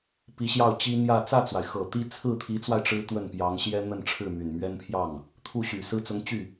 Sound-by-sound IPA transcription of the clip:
p i˧˥ ɕ j ɑ˥˩ ʊ̯ t͡ɕ i˥ n̪ j ä˥˧ t͡s ä˥˩ t͡s w a˩ ɪ̯ x ɤ˨˩ t̪ i˥˧ t͡sʰ ɹ̩˥˩ t̪ʰ i˧˥ t͡s w a˧ ɪ̯ ʈ͡ʂ ɻ̩˥ t̪ w ə˥˩ n p j ɑ˧˥ ŋ ɕ j ɛ˥ n̪ ə˥˧ n ʈ͡ʂʰ ɻ̩˥˩ m y˨˩ n m ɥ ɛ˥ n pʰ j ɑ˥˩ ŋ | t̪ʰ u˥˩ ɕ y˨˩ s ɹ̩˥˩ t͡s ʊ˧˥ ŋ t͡ɕ y˥˩

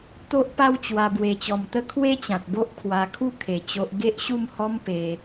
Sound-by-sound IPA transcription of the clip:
t̪ o˦ ʔ p a˦ w t͡ɕ w a˧ b w e˧ t͡ɕ ɔ˧ m t̪ ə˦ kʰ w e˦ t͡ɕ ã˨ t̚ b o˦ ʔ kʰ w a˧ kʰ u˥˧ kʰ e˧ t͡ɕ o˦ ʔ ɡ e˦ ʔ ɕ u˥˧ m h ɔ˦ m p e˧

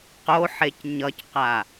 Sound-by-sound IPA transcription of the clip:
q o ħ e c ɲ ʌ c q a

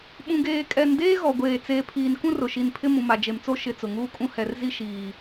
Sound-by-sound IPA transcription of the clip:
ɓ ũ˨ ɡ eː˨ kʼ ɛ˨ n d eː˦ ɣ ɔ˨ ɡʷ eː˨ t͡s eː˨ pʰ iː˨ n k ũ˦ r ʊ˨ ʃ i˨ n pʰ ɪ˦ m ũ˨ m a˨ d͡ʒ e˨ m t͡s o˦ ʃ ɪ˨ t͡s ʊ˨ ŋ uː˦ kʼ ũ˦ h ɛ˨ r z i˦ ʃ iː˨

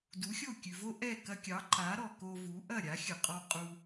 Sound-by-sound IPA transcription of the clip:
d u˩˥ xʲ o˥˩ kʲ ʉ˩ v o˥ ʔ ɛ˥˩ k ɐ˧ kʲ ɑ˩˥ ǃ a˩˥ ɾ ɔ˩ k o˧ v u˩˥ ʔ ɐ˥˩ ɾʲ a˩˥ xʲ ə˩ qʼ ɔ˧ qʼ u˧

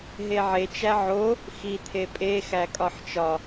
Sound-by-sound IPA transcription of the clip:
ɦ e ʕ e t͡ʃ æ ʕ o | x i t̪ʰ e pʼ e x æ kʼ ɒ ħ t͡ʃ ɒ

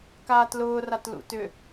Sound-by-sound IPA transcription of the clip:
k aː t l ʊː r a t l ṵ t ʏ

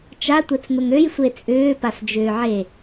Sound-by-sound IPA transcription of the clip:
t͡ʃ a tʷ ɛ t͡s n̪ ʊ ŋ ø j sʷ e t͡sʼ ʏː p a s d͡ʒ ʏː ʕ e

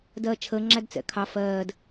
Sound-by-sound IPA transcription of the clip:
d ɜː t͡ʃʰ əː ŋ͡ǁ æ d t͡s ɛ̰ kʰ ɑ f ɜː d

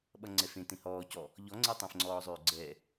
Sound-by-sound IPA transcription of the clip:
ɓ ʌ ŋ͡ǀ ɛ f ẽ t ẽ h ɔː c ɔ | ʎ ɔ ŋ͡ǀ e tˤ ẽ f ŋ͡ǀ ɔː zˤ øː ɡ͡ǀ ɛ

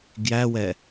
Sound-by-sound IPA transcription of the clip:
ɡ j æ w ɛ

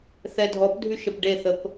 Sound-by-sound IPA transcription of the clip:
θ ɛ dʱ ɔ p dʱ y ʃ ə p ɖ e θ ə p

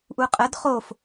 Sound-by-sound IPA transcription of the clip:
ʔ u qʼ ə d χ o f

